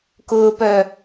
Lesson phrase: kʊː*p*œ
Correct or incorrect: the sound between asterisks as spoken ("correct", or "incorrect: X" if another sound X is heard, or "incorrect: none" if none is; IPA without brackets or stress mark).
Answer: correct